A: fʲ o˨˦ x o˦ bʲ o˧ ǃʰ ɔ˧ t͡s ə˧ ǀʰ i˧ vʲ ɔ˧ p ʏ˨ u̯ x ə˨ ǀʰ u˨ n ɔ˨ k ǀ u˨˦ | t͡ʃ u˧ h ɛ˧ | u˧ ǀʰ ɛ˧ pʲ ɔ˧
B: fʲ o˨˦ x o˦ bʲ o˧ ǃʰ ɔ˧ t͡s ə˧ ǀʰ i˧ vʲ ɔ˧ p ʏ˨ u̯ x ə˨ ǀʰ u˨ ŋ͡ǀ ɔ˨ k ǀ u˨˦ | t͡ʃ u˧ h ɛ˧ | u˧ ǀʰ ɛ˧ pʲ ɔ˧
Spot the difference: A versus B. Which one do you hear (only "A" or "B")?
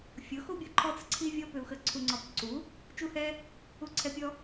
B